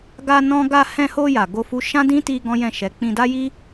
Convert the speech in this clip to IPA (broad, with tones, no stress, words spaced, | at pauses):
ɡa˧ nɔ̃˦ ɡa˧hɛ̃˧ho˧ ja˨ɡo˧fu˧ ʃã˦dĩ˦ti˧ ɡɔ̃˦jɛ̃˦˨ʃɛ˨˦ k͡pĩ˧da˦ji˦